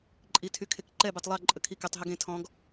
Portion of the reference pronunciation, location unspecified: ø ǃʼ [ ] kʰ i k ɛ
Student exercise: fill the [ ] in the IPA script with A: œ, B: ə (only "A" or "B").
B